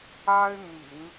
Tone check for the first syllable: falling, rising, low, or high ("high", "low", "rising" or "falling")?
high